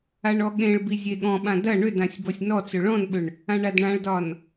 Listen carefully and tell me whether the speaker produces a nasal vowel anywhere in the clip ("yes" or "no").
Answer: yes